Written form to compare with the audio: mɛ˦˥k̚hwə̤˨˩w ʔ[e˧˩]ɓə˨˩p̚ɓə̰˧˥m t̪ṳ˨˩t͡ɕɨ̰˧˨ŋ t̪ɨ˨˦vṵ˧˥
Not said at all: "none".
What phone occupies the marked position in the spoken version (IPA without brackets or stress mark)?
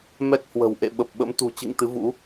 ḛ˧˨